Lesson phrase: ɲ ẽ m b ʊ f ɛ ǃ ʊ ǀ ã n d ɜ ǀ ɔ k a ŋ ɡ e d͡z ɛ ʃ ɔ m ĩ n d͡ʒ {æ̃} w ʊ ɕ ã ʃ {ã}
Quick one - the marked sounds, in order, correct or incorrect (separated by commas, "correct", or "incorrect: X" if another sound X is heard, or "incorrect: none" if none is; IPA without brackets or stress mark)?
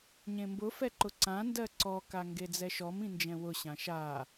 incorrect: ɛ̃, incorrect: a